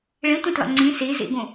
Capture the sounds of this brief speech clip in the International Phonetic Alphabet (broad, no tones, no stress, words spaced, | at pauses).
ɭĩtʷĩtlɔ̰ ŋ͡ǀĩ sizḭɡũ